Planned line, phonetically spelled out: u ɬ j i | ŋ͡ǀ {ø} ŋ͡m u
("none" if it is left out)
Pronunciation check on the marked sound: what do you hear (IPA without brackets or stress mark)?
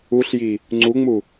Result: u